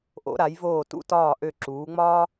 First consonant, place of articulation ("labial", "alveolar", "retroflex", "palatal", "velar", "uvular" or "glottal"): glottal